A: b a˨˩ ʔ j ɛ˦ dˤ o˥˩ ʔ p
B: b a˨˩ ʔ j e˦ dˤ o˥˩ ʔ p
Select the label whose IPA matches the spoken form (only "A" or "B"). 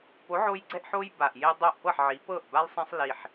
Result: B